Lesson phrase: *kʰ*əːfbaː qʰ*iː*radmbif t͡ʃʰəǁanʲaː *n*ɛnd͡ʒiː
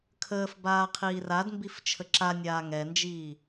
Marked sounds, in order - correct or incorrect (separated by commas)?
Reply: correct, correct, incorrect